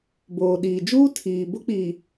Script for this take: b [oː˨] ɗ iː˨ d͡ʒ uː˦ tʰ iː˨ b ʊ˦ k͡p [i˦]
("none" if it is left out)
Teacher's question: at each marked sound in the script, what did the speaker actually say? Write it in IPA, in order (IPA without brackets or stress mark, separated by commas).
oː˨, i˨